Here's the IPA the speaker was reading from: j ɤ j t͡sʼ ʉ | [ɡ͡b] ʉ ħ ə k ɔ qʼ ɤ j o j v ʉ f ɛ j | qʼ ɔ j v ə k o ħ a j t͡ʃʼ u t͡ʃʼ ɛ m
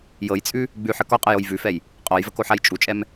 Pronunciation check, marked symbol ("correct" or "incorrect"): correct